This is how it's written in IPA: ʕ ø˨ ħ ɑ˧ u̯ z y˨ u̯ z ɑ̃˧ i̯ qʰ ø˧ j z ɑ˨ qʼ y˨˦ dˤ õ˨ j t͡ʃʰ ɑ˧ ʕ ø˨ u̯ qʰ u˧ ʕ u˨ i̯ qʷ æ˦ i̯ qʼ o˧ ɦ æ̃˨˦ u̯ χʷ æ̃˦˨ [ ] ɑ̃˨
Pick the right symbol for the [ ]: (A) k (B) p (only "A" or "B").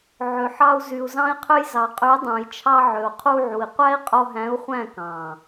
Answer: A